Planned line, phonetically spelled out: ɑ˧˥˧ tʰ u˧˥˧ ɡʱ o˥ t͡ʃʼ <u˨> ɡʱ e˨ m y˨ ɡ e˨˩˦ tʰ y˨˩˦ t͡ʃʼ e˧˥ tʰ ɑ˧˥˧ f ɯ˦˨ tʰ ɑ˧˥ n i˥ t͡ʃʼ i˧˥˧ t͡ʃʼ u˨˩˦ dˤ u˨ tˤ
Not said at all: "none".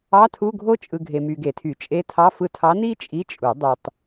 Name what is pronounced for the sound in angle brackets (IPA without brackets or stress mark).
ɯ˨